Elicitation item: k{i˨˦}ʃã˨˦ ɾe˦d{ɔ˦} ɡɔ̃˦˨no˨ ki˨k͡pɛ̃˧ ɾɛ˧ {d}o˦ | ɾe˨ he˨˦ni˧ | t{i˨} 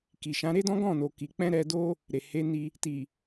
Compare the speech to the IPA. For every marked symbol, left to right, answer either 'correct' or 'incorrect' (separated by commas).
incorrect, incorrect, correct, correct